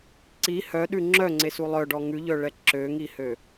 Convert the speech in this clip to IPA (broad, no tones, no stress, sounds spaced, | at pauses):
ǀ i h œ ɗ ʉ ŋ͡ǁ œ ŋ͡ǀ e s u lˠ œ ɖ ɔ ŋ ʉ ʎ œ ɭ ɛ ǁ ø ŋ i h ø